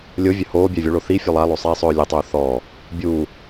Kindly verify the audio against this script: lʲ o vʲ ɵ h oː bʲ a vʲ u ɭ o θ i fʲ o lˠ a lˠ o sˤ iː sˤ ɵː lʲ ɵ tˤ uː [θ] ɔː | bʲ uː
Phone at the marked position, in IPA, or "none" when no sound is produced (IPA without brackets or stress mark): θ